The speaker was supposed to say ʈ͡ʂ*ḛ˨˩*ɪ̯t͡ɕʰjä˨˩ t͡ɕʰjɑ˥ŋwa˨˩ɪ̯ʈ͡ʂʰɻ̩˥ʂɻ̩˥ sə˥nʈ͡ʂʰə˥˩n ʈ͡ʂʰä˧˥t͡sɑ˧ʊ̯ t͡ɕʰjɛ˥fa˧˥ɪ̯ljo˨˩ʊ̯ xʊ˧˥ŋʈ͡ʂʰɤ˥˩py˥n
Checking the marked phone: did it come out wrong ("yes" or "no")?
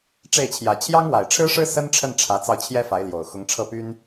yes